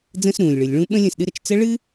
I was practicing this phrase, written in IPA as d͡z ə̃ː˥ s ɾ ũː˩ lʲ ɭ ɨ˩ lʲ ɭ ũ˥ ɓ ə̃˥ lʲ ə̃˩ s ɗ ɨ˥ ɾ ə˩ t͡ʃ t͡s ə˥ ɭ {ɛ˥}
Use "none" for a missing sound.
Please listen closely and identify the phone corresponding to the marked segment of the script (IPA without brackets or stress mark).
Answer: ɨ˥